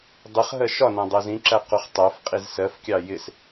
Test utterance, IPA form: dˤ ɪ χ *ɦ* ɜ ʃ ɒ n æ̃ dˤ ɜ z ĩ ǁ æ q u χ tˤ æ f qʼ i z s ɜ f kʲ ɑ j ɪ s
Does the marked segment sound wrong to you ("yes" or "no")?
no